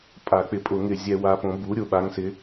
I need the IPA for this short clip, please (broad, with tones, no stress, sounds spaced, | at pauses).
pʼ a˨˩˦ k͡p ɪ˩˥ pʼ ʊ˨˩˦ ŋ ɪ˨˩˦ zʲ ɛ˨˩˦ w a˨˩˦ p õ˨˩˦ b u˩˥ ɾʲ ʊ˩˥ ɓ a˩˥ ŋ s ɪ˩˥